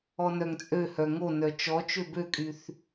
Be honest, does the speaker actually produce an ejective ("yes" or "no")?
yes